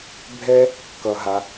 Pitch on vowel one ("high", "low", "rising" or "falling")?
high